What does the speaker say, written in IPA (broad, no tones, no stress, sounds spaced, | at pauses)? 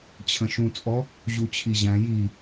t͡ɕʰ ə̃ ʃ ũ t͡sʼ ɔ | ʑ u t͡ɕʰ i ʑ æ̃ j i